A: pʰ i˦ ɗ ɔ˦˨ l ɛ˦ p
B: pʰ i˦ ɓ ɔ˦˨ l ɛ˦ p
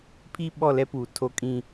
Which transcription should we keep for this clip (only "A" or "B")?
B